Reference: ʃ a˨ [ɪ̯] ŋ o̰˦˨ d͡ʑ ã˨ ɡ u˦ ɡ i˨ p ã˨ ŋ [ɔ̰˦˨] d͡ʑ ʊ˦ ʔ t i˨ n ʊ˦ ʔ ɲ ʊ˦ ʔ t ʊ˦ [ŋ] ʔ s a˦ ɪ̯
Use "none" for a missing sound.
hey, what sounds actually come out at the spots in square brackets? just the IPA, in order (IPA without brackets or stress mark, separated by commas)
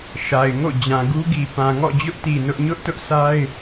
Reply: ɪ̯, ɔ̰˦˨, none